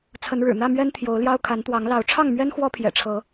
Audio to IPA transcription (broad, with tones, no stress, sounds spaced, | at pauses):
t͡sʰ ə˨˦ n ɻ ɻ̩˨˩ n̪ ä˥˨ m ɥ ɛ˦ n t̪ʰ j o˨˦ ʊ̯ l j ɑ˦ ʊ̯ kʰ a˨˦ n t̪ w ɑ˨˦ ŋ l ɑ˨˦ ʊ̯ ʈ͡ʂʰ ɑ˥˨ ŋ m ɥ ɛ˦ n x w ɔ˦ pʰ j ɛ̰˨˩ ʈ͡ʂʰ ɤ˨˦